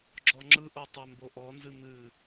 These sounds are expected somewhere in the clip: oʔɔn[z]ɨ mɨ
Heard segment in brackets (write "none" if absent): z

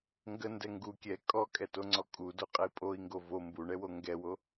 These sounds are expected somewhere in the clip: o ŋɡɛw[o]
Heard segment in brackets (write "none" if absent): o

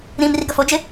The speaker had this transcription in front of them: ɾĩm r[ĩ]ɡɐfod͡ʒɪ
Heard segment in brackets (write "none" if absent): i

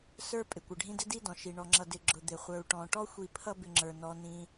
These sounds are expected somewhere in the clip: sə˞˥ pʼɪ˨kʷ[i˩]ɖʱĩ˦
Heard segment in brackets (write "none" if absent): ɪ˩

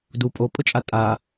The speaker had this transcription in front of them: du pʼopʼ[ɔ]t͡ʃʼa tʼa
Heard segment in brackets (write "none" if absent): ʊ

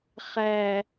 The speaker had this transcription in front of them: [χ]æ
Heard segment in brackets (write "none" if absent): χ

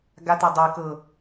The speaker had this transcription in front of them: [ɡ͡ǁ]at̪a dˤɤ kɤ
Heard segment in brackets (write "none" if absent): ɡ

